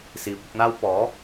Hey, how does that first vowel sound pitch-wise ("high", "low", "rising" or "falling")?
rising